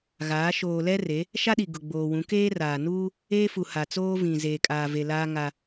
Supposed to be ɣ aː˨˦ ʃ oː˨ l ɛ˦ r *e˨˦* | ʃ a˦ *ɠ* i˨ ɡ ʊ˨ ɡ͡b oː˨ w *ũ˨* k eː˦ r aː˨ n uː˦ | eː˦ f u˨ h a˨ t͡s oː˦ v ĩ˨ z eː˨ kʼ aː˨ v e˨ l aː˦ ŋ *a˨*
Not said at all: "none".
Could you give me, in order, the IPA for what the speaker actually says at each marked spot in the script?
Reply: e˨˦, ɗ, ũ˨˦, a˦

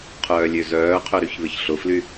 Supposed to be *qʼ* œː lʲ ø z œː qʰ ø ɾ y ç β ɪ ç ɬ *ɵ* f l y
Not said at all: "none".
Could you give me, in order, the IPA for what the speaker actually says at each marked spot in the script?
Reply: qʰ, ʊ

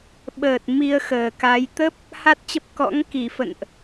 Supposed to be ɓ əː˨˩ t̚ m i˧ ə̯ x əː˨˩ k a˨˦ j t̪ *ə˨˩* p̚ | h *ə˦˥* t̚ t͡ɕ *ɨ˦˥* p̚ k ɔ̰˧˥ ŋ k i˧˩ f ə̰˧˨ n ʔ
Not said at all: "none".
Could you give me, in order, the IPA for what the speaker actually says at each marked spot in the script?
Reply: ə˦˥, a˦˥, ə˦˥

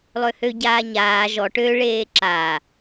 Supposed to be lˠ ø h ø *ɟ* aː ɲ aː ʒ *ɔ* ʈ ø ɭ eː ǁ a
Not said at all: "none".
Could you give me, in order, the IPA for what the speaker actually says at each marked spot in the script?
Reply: ɟ, ɔ

